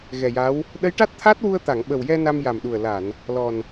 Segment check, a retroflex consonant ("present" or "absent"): present